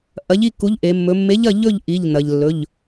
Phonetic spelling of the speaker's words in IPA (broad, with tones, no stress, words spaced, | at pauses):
ʔɐ˨˥ʎi˥˨ku˨˥ʎʔe˩˧ mːɵ˩˧mːe˨˥ʎɐ˥˨ ʎɵ˥˨ʎ ʔi˩˧˩ʎnɐ˩ʎlːɵ˩˧˩ʎ